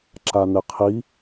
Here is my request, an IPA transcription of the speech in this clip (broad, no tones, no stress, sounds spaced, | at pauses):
ǁ a n̪ ɪ qʰ i